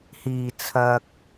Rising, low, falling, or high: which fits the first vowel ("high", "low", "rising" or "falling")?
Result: low